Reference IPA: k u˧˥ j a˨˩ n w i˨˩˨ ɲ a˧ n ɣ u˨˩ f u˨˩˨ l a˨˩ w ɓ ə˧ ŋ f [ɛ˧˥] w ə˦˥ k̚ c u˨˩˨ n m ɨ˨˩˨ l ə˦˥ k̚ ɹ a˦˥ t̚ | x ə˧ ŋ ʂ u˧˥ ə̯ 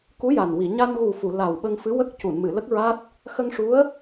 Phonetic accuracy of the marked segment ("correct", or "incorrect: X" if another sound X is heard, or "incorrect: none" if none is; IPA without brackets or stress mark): incorrect: ɨ˧˥